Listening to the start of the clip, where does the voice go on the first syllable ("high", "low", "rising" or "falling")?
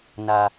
low